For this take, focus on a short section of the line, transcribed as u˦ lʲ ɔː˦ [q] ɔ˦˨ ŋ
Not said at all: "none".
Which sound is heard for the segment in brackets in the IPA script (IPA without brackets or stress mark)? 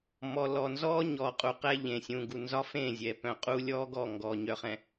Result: ɡ